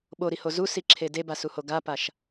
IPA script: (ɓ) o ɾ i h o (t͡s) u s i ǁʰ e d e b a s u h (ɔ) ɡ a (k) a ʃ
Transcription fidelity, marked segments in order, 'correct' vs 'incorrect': correct, incorrect, incorrect, incorrect

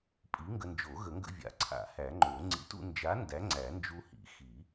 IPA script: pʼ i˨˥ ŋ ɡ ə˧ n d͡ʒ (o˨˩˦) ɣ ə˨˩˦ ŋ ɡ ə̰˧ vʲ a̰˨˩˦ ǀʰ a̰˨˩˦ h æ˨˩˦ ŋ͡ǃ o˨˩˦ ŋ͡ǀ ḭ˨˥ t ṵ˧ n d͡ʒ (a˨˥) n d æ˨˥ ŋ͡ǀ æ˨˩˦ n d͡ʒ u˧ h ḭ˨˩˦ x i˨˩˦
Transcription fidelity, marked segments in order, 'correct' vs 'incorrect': correct, correct

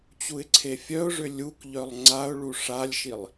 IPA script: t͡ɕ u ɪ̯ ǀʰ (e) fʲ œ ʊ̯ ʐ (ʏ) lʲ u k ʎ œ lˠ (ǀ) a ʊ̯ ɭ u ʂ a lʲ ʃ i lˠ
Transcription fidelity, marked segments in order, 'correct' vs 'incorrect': correct, correct, incorrect

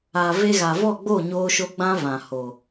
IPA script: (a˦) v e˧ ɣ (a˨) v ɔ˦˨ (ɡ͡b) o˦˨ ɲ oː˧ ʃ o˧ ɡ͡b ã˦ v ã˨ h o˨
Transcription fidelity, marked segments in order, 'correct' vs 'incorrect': incorrect, correct, correct

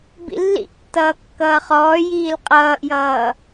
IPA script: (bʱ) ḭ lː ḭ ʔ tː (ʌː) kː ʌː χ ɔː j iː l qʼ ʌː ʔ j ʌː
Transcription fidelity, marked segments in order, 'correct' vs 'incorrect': incorrect, correct

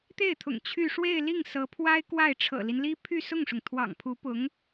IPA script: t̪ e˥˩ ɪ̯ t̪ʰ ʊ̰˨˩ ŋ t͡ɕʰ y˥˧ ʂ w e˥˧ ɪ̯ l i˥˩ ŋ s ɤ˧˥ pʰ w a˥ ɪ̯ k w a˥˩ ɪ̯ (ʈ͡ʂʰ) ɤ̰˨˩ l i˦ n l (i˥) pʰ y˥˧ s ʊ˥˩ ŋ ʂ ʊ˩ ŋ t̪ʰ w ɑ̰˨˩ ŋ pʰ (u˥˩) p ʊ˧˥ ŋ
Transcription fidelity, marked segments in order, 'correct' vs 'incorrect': correct, correct, incorrect

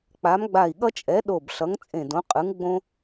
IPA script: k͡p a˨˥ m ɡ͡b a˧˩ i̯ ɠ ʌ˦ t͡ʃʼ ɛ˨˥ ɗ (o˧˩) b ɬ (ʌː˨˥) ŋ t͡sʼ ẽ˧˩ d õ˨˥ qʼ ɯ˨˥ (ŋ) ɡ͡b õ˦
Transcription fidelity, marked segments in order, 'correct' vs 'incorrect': correct, incorrect, correct

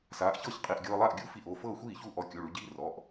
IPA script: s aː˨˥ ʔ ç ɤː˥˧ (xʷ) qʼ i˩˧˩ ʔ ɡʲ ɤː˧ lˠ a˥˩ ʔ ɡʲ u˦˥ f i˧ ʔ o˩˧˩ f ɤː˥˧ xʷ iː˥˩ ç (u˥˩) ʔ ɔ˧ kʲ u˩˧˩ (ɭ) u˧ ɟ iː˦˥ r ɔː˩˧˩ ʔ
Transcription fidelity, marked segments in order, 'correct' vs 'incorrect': incorrect, correct, correct

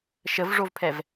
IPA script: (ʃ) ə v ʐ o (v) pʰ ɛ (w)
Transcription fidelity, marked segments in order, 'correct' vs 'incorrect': correct, correct, incorrect

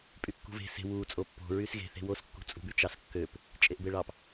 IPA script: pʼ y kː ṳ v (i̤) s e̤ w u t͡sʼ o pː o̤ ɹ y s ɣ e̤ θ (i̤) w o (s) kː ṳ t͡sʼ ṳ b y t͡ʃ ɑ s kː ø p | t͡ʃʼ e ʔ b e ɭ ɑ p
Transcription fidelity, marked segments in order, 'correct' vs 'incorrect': incorrect, incorrect, correct

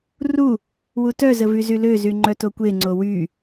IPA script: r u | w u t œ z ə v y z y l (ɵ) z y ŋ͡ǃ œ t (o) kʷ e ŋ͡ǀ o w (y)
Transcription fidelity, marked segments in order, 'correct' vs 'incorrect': incorrect, correct, correct

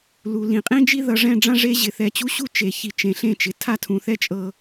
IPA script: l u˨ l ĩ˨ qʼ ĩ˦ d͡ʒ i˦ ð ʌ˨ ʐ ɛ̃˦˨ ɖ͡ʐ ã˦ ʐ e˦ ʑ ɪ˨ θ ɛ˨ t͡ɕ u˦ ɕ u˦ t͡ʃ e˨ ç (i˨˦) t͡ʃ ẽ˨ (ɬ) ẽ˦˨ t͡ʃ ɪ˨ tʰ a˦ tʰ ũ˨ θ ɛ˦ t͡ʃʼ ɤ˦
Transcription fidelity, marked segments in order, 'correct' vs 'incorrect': incorrect, correct

